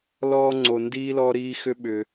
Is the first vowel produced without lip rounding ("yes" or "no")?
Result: no